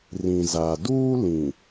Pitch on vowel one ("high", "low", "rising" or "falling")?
low